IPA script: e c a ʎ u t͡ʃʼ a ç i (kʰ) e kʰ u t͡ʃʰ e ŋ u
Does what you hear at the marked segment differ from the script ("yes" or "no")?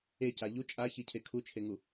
yes